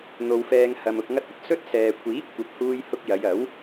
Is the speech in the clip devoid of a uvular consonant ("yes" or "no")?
yes